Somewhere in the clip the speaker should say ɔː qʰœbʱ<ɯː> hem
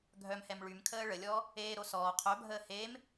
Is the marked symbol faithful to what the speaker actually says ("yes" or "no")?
no